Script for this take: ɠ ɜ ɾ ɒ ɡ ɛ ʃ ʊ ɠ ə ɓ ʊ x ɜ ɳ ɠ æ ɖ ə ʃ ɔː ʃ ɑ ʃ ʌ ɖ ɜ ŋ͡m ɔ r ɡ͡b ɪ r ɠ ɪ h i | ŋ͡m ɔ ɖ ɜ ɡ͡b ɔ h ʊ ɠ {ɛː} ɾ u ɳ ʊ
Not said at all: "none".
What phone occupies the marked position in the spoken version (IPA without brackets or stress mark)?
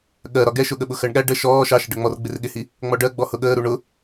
əː